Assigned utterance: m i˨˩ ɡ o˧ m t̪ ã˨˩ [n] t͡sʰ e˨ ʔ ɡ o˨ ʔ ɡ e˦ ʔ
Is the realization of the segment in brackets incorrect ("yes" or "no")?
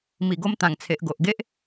yes